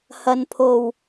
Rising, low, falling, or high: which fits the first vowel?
low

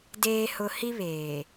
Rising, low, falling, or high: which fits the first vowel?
low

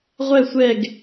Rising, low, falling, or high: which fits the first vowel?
falling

